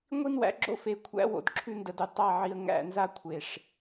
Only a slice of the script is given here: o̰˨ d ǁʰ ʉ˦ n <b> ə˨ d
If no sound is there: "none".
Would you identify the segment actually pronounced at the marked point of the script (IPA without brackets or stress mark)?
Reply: d